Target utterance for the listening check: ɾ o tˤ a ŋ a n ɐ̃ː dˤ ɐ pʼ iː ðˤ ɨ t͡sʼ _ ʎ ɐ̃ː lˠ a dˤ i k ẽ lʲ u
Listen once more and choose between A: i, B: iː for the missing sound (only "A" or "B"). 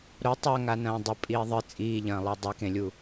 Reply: B